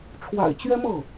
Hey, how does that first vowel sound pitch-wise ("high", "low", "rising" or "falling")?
low